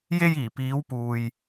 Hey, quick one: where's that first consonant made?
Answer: palate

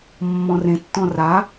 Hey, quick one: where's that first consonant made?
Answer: lips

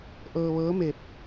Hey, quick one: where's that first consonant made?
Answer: throat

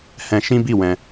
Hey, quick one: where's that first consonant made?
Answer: throat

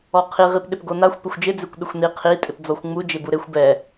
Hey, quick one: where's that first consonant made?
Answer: uvula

